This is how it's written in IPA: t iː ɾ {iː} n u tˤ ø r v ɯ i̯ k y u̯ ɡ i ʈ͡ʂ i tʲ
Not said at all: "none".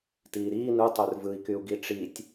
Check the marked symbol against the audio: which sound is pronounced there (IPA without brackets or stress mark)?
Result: iː